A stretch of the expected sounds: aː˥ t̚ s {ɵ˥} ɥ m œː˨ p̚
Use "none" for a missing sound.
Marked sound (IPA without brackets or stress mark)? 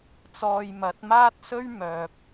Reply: ɵ˥